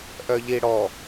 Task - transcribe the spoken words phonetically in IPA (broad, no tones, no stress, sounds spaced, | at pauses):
ʔ œ ʎ i ɽ ɔ